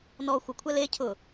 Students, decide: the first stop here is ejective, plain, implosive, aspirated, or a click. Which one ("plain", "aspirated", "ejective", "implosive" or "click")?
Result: aspirated